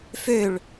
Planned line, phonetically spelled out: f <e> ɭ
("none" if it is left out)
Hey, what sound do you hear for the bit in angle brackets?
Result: ø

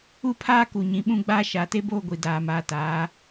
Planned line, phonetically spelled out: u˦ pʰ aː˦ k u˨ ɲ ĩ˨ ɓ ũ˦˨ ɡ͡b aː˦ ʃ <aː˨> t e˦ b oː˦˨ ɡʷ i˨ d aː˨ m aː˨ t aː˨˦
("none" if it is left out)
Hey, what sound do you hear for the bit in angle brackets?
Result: aː˨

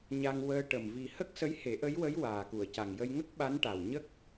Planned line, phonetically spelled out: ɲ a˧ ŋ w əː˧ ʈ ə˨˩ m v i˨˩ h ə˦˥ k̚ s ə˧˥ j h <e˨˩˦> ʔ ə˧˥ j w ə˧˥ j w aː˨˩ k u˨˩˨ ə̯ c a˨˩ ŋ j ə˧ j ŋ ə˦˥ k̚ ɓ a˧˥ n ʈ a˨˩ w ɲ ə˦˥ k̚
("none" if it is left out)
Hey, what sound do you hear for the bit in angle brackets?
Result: e˨˩˦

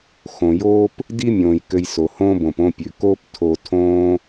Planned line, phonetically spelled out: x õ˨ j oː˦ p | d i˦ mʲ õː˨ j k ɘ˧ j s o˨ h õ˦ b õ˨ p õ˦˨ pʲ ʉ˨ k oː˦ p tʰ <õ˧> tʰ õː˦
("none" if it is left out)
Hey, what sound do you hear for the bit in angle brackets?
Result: o˧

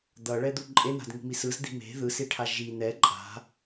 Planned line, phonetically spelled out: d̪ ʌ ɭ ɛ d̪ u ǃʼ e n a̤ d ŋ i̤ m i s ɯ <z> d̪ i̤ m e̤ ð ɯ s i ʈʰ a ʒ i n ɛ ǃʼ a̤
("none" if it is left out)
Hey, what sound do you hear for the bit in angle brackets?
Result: z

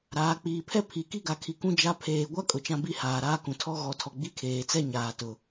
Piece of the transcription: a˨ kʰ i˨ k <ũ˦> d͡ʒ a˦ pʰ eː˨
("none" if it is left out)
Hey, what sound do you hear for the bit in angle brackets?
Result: ũ˦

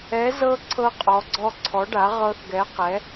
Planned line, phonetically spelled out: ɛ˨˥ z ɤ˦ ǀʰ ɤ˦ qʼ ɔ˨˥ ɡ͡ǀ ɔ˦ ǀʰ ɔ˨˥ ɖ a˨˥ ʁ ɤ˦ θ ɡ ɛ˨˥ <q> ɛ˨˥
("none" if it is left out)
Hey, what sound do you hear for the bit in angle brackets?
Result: q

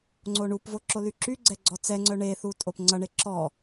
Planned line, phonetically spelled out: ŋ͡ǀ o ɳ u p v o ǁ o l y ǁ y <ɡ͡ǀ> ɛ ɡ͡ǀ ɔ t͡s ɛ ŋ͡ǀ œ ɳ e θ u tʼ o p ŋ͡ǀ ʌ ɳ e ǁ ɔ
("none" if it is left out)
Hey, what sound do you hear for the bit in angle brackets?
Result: ɡ͡ǀ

